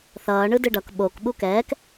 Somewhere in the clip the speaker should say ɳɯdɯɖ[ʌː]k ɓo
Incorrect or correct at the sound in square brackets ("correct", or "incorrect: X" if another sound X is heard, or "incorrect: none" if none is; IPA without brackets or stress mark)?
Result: incorrect: ʌ